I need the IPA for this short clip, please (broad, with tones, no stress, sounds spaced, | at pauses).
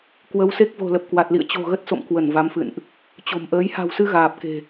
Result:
k w ə˨˦ w s e˦˥ k̚ v o̤˨˩ l ə˨˩ p̚ k w a˨˩ t̚ l ḭ˧˨ ə̯ t͡ɕ o̤˨˩ ɣ ə˦˥ t̚ s o̰˧˨ m k w ə˧˩ n v a˨˦ m f ɨ̰˧˨ n ʔ | t͡ɕ o̤˨˩ m ʔ əː˨˦ j h a̤˨˩ w s ɨ˧ ɣ aː˨˩ p̚ k e̤˨˩